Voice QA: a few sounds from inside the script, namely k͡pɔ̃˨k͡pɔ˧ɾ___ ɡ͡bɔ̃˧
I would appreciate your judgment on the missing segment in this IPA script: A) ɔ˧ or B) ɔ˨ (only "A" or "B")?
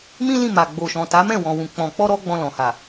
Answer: A